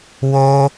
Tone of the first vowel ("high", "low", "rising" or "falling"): high